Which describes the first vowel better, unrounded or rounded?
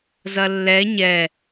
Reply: unrounded